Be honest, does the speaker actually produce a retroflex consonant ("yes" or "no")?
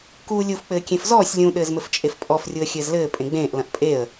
no